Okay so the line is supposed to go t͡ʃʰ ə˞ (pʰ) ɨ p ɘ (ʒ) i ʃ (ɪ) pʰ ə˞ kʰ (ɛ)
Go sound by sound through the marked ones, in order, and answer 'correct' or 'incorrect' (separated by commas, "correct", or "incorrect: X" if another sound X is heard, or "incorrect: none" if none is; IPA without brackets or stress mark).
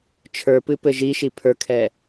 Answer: incorrect: p, correct, incorrect: i, correct